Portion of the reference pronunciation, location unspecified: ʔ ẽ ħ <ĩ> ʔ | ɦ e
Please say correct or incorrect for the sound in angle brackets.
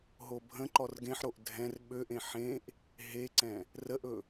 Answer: incorrect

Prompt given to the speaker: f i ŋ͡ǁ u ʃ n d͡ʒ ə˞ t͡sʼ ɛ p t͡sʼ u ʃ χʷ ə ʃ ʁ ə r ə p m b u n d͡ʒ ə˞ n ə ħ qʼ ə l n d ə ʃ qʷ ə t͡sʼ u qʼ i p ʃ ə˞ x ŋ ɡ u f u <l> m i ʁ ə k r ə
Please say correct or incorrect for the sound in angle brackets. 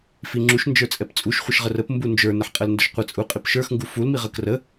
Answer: correct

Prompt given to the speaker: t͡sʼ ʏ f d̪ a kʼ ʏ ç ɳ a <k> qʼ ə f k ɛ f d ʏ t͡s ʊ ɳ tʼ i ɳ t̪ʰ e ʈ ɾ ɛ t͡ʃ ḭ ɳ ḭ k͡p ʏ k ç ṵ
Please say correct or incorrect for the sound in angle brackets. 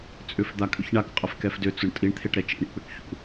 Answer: correct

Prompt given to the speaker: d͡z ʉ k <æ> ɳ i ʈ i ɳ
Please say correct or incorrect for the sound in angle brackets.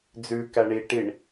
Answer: correct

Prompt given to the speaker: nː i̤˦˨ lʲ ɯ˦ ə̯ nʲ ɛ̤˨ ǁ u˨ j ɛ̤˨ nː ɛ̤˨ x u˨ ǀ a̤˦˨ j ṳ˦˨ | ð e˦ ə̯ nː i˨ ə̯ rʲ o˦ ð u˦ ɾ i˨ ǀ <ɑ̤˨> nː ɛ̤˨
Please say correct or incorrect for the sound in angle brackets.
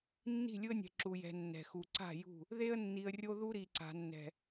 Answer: incorrect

